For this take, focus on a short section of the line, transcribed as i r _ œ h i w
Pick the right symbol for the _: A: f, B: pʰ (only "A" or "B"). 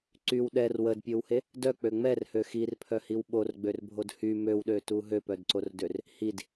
B